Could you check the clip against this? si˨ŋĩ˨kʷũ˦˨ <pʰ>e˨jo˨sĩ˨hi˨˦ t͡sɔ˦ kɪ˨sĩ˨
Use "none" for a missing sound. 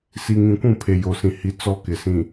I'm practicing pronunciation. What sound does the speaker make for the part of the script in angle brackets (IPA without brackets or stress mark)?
pʰ